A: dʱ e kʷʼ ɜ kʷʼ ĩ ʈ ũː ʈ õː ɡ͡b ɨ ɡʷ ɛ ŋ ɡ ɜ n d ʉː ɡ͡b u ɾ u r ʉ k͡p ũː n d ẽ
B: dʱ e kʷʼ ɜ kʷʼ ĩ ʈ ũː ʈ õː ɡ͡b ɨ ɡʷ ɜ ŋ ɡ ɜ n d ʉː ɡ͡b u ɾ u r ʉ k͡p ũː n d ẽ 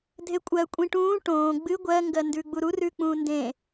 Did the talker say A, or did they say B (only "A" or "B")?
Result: B